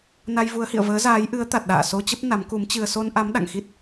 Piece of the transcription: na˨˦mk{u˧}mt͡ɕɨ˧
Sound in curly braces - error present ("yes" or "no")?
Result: yes